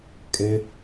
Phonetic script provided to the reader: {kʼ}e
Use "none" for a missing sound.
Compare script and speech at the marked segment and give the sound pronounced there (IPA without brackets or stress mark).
kʼ